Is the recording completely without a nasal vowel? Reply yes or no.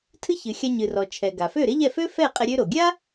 yes